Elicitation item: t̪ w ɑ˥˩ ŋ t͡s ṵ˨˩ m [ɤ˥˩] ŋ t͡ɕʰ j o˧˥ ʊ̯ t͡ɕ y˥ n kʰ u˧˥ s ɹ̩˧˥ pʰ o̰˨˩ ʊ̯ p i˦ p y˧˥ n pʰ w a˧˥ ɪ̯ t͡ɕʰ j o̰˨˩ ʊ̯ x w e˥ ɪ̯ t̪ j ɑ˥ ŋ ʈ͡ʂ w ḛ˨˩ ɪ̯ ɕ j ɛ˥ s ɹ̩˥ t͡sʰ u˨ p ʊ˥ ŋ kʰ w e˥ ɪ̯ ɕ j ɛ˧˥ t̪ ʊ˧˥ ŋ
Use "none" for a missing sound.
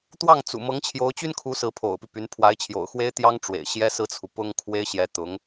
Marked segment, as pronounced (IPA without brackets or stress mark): ɤ˧˥